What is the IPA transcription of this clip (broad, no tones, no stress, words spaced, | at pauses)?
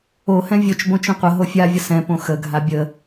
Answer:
o hɛ̃vʲot͡ʃ bõt͡ʃõqʷə ɦofʲavʲə sɛ̃põ xəɡʱa bʲə